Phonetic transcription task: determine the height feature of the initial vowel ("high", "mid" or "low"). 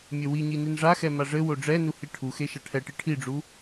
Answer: mid